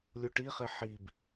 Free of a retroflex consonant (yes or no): no